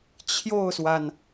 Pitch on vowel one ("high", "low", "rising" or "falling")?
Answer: falling